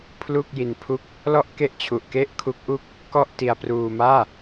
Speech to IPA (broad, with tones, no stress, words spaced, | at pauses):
pʰlu˥˩k̚ji˧npʰu˥˩k̚ | lɔ˥˩ʔ ke˥˩ʔt͡ɕʰu˨˩ʔ ke˥˩ʔkʰu˦˥k̚ʔu˥˩k̚ | kɔ˥˩ʔti˧a̯pruː˧maː˥˩